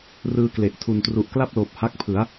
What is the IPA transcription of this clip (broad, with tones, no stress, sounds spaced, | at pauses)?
r ɯː˧ k l e˨˩ ʔ tʰ u˨˩ n t r u˨˩ ʔ k l a˥˩ p̚ l oː˨˩ p̚ h a˦˥ k̚ pʰ ɯ˩˦ a̯